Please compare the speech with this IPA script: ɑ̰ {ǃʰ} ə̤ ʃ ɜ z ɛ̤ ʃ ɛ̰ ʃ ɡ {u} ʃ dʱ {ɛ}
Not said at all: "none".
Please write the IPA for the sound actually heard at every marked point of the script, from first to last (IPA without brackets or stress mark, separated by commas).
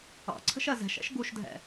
ǀʰ, u, ɛ̰